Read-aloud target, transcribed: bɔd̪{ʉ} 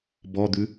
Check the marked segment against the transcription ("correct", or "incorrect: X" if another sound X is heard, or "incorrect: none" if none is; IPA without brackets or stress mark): correct